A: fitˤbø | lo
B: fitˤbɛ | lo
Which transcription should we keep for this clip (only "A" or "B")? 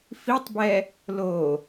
B